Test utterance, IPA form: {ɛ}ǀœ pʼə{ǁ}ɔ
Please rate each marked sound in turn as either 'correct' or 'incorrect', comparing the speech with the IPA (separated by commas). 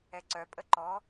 correct, incorrect